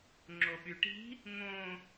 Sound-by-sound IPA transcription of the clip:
ŋ͡ǁ o ɓ y ʈ i̤ | ŋ õ

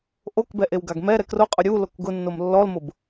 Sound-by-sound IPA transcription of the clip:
ʔ o k b ɛ ʔ e w ɡ a ɡ m ɛ ɾ ɛ k r o qʼ ʊ ɾʲ u l o k ɡ ʊ nː o m lː ɔ l m ʊ b

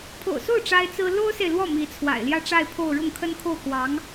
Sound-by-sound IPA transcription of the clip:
pʰ o̰˨˩ ʊ̯ s o˥˩ ʊ̯ ʈ͡ʂ a˥ ɪ̯ t͡s ɹ̩˥ l o˥ ʊ̯ s e˨ ɪ̯ l w ɔ˥˩ m i˧˥ t͡sʰ w a̰˨˩ ɪ̯ l j ä˥˧ ʈ͡ʂ a˥˧ ɪ̯ pʰ o˥˧ ʊ̯ ɻ ʊ˥˩ ŋ kʰ ə˥ n kʰ o˥˩ ʊ̯ k w ɑ˧˥ ŋ

